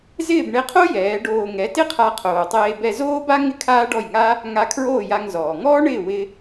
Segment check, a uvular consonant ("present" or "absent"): present